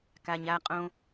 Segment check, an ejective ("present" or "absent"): present